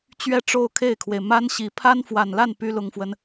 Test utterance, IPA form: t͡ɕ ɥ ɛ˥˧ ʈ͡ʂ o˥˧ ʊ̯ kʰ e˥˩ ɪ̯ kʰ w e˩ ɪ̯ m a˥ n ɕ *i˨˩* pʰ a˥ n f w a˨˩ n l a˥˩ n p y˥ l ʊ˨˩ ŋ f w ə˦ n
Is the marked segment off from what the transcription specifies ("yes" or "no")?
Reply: no